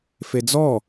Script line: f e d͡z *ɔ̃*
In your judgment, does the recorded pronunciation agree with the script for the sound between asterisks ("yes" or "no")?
no